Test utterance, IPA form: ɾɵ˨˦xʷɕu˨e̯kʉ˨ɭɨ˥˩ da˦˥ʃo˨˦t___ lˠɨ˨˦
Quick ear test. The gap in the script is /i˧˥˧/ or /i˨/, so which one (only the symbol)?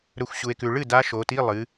i˧˥˧